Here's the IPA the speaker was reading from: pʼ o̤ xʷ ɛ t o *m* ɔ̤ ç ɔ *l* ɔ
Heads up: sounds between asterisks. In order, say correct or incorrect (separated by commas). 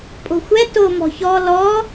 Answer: correct, correct